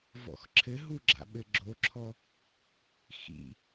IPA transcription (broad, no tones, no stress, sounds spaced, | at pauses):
v ɔ̰ x ǁʰ ɘ ɦ u ɡ͡ǁ a̰ ɓ ɘ ɡ͡ǁ o ǁʰ ɔ | x ḭ